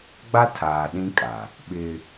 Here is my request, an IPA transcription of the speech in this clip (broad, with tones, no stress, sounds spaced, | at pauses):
ɡ͡b a˦ tʰ aː˨ ɗ ĩ˦ kʼ a˨ | ɓ ɪ˦